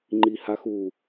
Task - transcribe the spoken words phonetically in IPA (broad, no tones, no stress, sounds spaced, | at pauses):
ŋ͡ǃ i h a x u